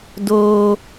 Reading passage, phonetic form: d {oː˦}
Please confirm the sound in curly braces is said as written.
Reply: yes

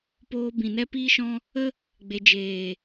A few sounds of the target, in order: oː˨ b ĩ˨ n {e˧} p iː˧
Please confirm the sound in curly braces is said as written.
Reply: no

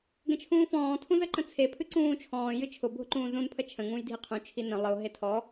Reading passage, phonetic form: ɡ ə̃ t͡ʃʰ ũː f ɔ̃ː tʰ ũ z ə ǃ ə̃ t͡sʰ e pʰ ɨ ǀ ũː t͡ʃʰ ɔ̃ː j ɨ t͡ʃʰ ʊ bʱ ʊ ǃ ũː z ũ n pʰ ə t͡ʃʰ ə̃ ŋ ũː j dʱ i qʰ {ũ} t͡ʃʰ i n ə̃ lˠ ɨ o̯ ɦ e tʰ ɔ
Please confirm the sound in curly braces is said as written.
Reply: yes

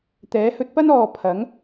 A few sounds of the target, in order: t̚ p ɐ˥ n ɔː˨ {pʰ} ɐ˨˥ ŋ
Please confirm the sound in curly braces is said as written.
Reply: yes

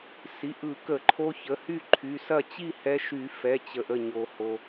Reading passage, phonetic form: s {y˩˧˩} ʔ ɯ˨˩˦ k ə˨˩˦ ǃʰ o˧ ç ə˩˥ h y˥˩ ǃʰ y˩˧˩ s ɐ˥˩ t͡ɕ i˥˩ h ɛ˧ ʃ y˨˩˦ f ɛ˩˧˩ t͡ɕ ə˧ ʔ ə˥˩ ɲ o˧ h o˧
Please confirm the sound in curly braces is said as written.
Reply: no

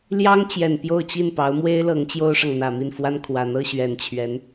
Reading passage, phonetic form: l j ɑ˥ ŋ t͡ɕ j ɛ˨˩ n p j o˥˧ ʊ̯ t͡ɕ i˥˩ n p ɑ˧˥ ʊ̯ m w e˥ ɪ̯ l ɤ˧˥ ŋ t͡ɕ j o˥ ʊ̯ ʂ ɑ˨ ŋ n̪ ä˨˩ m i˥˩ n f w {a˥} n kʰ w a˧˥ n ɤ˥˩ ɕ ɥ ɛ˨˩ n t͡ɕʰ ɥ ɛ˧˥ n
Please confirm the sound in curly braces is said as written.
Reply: yes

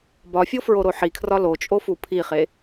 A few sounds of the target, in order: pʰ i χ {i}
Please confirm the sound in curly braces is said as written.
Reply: no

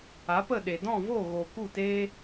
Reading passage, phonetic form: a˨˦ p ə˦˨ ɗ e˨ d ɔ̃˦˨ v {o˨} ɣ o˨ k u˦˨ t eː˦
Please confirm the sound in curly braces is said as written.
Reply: no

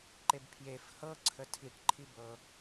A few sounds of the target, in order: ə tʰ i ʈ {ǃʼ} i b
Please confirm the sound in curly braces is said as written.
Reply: no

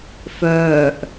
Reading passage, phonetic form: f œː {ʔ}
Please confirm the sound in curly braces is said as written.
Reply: yes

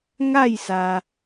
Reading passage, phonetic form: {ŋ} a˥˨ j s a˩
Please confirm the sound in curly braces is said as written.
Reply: yes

